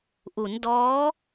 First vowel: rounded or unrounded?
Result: rounded